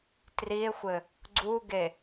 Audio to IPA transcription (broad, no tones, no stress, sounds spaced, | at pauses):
t r i e̯ xʷ ɘ | ɡ͡ǀ u ɡ e